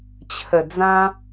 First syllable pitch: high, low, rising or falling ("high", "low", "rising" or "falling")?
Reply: low